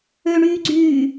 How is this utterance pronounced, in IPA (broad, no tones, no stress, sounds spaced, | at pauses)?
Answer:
ø ɳ yː ɡ͡ǀ yː